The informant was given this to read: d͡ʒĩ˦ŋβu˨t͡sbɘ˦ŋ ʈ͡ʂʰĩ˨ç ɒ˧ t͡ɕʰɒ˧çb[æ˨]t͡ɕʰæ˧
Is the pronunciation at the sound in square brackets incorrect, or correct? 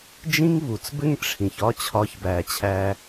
correct